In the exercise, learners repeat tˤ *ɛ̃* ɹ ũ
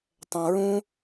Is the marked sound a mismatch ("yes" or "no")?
no